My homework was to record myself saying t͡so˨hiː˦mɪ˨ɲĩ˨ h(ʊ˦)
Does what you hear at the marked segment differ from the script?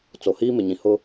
no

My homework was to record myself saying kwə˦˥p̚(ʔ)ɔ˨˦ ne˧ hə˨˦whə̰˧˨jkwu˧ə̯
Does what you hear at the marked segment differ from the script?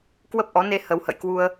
no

